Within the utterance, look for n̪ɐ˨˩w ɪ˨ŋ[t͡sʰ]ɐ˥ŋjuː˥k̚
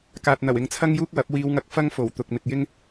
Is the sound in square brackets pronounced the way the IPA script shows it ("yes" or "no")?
yes